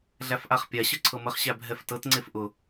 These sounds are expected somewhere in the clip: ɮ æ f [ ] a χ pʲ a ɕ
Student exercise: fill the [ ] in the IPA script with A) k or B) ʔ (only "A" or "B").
B